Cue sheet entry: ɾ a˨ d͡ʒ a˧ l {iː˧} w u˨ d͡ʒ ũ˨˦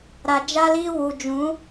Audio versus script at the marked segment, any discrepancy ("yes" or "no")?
no